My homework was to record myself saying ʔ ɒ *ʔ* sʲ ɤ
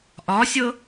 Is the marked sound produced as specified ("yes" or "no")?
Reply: no